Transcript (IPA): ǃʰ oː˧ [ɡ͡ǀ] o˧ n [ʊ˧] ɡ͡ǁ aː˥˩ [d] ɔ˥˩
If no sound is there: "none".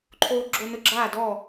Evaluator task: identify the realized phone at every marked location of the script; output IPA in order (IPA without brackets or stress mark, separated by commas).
ɡ͡ǁ, ʊ˧, d